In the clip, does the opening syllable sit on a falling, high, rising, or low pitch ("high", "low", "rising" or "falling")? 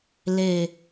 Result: falling